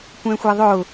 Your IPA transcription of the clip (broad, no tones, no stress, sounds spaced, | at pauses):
kʷ ɛ̃ xʷ ɛ ðˤ ʊː